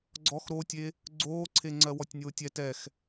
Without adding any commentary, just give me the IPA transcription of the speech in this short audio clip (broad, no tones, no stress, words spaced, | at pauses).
ɡ͡ǀɔx ɾotʲe | ɡ͡ǀoːǀʰeŋ͡ǀɜ wɔtʲnʲoːtʲɛ tɛx